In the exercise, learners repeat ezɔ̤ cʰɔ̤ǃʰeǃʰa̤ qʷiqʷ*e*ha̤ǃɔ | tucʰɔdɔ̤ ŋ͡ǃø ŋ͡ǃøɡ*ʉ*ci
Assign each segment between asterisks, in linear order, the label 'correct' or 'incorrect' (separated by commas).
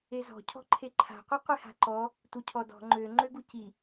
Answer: correct, incorrect